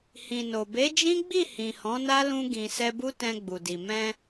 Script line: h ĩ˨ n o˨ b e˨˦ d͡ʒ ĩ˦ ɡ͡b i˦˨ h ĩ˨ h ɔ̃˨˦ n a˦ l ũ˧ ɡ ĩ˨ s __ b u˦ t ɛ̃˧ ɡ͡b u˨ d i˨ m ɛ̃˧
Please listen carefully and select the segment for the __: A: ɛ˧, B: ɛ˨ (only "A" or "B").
A